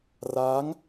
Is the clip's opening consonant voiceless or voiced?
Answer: voiced